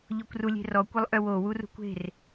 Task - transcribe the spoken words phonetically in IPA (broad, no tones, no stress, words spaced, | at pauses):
ʎɔkʷrulʲe̤rɔ kʷəlˠʔœwo wurṳkʷe̤r